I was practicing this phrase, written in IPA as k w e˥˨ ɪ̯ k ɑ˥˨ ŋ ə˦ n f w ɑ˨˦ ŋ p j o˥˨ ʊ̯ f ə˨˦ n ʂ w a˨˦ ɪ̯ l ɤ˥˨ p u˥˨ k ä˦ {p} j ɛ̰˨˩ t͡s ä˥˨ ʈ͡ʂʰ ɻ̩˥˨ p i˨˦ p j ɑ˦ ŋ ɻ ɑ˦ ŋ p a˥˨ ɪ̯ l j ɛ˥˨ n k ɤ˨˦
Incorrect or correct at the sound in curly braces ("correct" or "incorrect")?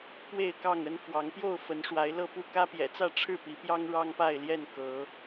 correct